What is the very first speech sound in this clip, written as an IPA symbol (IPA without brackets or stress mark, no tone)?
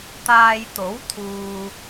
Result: t̪